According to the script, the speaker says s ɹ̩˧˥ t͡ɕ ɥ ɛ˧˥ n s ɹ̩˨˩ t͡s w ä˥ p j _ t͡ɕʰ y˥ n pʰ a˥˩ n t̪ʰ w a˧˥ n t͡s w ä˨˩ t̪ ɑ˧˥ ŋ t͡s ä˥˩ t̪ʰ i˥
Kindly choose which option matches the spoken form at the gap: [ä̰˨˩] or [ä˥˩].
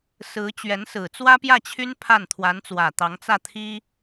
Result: ä˥˩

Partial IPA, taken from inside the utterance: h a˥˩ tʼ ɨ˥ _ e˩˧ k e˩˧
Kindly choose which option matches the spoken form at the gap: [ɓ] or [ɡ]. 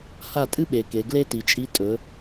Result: ɓ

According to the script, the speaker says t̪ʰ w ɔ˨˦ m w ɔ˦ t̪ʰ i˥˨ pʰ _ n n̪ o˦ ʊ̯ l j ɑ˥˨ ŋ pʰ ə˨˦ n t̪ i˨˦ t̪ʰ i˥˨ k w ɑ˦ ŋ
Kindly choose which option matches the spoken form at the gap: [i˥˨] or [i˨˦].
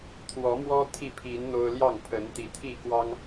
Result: i˨˦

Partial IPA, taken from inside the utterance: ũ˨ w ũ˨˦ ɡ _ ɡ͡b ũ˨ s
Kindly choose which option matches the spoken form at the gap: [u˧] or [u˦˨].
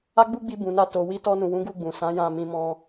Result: u˦˨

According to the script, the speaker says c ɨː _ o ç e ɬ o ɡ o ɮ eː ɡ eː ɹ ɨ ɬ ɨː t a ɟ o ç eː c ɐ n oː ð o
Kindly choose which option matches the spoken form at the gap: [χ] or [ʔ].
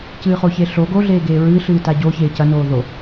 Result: χ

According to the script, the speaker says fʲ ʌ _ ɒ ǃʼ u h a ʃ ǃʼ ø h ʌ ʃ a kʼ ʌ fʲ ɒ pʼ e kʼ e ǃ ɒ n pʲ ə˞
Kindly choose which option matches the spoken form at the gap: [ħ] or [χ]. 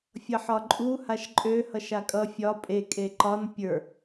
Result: ħ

